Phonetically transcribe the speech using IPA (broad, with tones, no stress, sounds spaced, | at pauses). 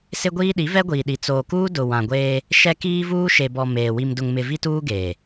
s ɪ˦ ɡʷ iː˦ ɗ i˨˦ v ɛ˦ ɡʷ iː˨ ɗ i˨ t͡s oː˨ k uː˦ d ʊ˨ w ã˨ ɡʷ eː˦ | ʃ ɛ˦ k iː˦ v uː˦ ʃ e˨ b ɔ˨ m eː˨ w i˨ m d ʊ˨ ŋ m ɪ˨ v i˦ t uː˦ ɡ eː˨